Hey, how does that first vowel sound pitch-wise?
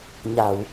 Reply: low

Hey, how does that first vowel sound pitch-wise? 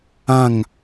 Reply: falling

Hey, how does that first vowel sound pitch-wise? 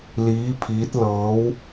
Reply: rising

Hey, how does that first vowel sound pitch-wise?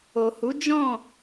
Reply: low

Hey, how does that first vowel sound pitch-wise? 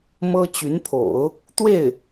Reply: high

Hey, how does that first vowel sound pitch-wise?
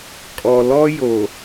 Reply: low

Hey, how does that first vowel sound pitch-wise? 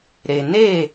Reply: low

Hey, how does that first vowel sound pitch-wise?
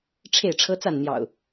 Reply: falling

